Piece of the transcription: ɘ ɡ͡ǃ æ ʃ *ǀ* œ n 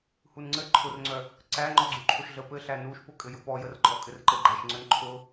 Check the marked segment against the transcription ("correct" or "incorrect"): incorrect